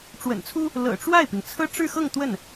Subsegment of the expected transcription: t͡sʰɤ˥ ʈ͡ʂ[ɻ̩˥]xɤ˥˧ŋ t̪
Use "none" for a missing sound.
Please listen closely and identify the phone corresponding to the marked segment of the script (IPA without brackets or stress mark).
ɻ̩˥˧